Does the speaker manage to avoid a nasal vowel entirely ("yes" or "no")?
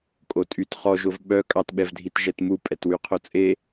yes